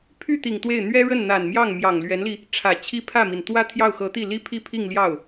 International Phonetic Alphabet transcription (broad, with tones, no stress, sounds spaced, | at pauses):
pʰ y˥˩ t̪ i˨˩ ŋ t̪ w e˥˩ ɪ̯ n̪ ɥ ɛ˥ ɻ ə˥˩ n n̪ a˨˩ n m j ɑ˥˩ ŋ m j ɑ˨˩ ŋ l ɥ ɛ˧˥ n l i˧ | ʈ͡ʂʰ ä˨˩ t͡ɕʰ i˥˧ pʰ ä˥˩ m i˩ n t̪ w ä˥ t̪ʰ j ɑ˥˩ ʊ̯ x ɤ˧˥ t̪ i˥˩ l i˥ pʰ i˥ pʰ i˥˧ ŋ l j ɑ˥˩ ʊ̯